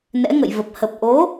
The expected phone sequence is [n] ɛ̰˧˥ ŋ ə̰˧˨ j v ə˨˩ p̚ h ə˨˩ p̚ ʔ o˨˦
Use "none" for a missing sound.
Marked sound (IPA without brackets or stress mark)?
n